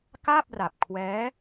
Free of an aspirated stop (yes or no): no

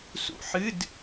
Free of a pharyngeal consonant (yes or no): no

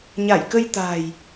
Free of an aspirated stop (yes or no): yes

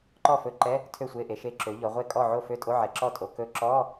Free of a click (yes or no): no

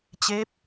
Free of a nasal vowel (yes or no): yes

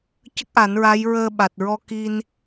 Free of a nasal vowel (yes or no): yes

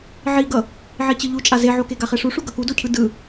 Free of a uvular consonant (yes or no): no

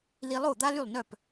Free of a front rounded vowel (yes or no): no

